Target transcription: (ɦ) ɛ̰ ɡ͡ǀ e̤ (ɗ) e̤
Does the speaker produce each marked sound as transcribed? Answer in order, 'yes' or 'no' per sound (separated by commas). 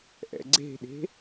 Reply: no, yes